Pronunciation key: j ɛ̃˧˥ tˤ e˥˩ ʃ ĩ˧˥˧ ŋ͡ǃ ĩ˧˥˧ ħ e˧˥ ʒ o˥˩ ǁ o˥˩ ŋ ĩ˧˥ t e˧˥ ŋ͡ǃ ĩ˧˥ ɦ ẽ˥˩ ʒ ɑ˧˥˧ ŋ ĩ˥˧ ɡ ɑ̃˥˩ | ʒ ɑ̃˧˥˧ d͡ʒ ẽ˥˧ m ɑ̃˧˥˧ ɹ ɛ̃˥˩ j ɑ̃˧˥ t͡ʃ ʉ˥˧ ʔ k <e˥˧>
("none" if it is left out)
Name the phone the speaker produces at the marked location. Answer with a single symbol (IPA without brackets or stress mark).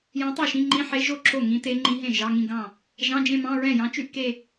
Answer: e˥˧